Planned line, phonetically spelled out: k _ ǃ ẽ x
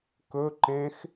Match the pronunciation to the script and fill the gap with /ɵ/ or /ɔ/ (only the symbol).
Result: ɵ